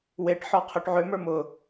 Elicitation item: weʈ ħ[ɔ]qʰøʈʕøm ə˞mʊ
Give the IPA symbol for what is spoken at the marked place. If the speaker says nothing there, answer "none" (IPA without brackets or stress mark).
ɔ